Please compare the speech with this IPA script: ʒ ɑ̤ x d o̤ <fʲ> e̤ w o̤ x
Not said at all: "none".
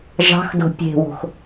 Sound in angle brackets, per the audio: pʲ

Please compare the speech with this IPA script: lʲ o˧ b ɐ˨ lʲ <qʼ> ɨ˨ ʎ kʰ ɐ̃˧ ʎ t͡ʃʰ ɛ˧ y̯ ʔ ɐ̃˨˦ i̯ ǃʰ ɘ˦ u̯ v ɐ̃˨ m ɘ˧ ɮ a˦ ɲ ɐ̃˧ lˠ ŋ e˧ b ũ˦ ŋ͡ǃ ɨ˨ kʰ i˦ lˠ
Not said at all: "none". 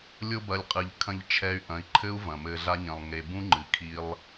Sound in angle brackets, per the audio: qʼ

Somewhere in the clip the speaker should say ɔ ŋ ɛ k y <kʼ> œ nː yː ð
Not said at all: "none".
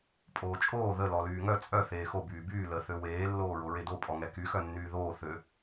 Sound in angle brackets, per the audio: x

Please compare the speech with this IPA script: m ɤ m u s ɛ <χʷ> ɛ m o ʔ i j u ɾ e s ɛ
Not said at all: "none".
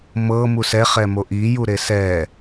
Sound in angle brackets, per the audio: χ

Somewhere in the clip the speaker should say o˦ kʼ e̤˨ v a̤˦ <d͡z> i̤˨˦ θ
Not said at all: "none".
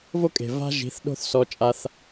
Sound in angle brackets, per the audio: ʒ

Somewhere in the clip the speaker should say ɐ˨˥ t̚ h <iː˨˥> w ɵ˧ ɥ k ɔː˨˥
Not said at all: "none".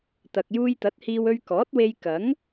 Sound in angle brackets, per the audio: iː˧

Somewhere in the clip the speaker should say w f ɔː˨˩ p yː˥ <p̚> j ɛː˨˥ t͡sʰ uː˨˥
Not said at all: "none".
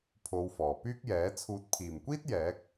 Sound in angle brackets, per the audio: k̚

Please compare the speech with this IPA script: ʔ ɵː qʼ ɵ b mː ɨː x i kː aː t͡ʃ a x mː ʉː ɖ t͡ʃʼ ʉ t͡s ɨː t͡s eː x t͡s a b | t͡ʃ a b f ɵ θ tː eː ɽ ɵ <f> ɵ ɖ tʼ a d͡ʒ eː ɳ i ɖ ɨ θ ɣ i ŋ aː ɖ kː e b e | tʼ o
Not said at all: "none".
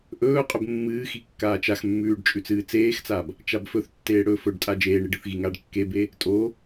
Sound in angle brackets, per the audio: f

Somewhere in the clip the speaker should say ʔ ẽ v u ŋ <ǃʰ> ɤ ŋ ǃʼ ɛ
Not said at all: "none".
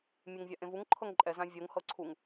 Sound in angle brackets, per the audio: ǃʰ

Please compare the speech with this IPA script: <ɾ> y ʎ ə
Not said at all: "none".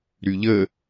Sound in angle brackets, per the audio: ɾ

